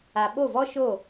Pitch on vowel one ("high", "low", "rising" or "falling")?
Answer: low